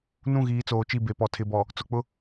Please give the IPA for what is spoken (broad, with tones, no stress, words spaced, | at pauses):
nũ˦˨ɣiː˨˦t͡soː˨t͡ʃi˦˨ be˨pɔ˨ tʰɪ˨bɔ˨ | t͡sʊ˨k͡pʊ˦